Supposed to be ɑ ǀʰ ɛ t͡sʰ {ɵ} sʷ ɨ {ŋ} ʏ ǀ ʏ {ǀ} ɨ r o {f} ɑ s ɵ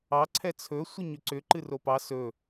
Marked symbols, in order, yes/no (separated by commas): yes, no, no, no